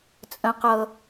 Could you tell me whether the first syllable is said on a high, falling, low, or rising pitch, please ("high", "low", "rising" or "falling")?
high